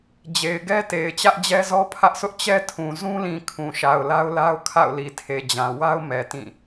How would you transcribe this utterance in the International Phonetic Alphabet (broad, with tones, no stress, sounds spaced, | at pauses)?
d͡ʑ e˨ ɪ̯ ɡ ɛ˦ t e˨ ɪ̯ t͡ɕ ä˦ ʔ d͡ʑ ɛ˦ z ɔ˦ pʰ ä˦ ʔ s ʊ˦ ʔ t͡ɕ ɛ˦ tʰ ũ˨ z ũ˦ l ĩ˨ kʰ ũ˨ ʃ a˨ ʊ̯ l a˦ ʊ̯ l a˦ ʊ̯ kʰ a̰˦˨ ʊ̯ l i˨ tʰ e˨ d͡ʑ ã˨ w a˦ ʊ̯ m ɛ˨ t ĩ˦˨